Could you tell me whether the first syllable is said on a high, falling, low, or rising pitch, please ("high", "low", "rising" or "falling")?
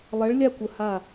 rising